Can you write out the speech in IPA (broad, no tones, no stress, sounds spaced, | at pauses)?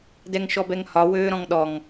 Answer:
d ɛ ŋ ʃ ɔ b ɛ ŋ h ɒ w øː ɾ ɔ̃ ŋ ɗ ɔ ŋ